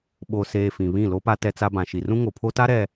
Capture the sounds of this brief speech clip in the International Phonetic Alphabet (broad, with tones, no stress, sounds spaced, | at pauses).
ɓ o˨ s eː˨ f ĩ˨ β ĩ˦˨ l o˦ p a˦ t ɛ˦ t͡s a˦ b ã˨ ʃ i˨ r ũ˦ ŋ o˨ pʰ o˦ t a˦ ɾ ɛ˨